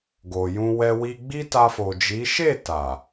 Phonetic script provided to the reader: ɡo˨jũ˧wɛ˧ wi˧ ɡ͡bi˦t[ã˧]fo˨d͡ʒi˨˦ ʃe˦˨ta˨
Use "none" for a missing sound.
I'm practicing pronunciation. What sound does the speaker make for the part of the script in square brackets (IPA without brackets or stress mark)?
a˧